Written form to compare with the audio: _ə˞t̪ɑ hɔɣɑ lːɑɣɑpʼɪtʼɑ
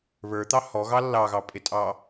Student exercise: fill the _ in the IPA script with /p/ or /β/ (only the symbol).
β